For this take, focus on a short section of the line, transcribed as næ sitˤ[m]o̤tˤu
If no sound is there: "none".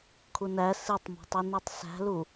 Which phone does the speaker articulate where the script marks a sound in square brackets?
m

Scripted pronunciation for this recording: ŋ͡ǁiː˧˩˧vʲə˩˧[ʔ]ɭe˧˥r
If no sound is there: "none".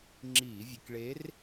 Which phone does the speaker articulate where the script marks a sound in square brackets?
k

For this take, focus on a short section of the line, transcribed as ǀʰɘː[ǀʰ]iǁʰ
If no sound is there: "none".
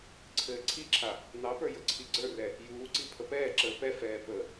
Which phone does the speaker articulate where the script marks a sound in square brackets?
ǀʰ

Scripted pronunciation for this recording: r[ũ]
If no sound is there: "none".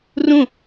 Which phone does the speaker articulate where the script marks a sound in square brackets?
ũ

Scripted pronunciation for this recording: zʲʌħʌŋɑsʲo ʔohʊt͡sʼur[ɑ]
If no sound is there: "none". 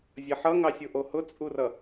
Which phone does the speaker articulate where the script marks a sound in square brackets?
ʌ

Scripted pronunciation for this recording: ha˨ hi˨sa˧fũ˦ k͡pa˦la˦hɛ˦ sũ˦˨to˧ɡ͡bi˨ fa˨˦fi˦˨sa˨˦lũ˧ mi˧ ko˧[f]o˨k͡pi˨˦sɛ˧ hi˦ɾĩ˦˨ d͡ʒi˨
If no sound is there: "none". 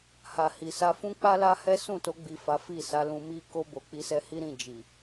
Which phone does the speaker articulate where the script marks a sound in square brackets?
b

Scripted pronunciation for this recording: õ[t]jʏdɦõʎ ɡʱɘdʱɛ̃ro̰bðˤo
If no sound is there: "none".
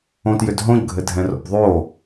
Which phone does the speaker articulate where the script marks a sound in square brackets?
t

